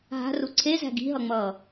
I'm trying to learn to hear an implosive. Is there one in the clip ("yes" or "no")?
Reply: no